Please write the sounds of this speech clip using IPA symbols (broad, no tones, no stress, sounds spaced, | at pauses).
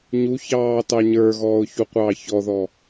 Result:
ɲ u ç ɑː t ɑ ɲ ə˞ ɣ ɔː ʊ̯ ç u qʷ ɑː ç ɔ ð ɔ